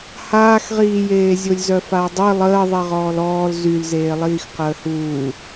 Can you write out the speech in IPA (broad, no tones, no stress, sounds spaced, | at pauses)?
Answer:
h aː x ʁ iː j eː zʲ o lʲ z œ f a w dˤ i lˠ əː ðˤ i ʁ ɔː l ɔː l z y l z eː lˠ iː x q əː h uː